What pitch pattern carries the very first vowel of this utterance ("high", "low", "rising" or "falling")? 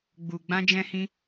low